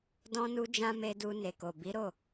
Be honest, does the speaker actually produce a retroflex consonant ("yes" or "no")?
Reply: no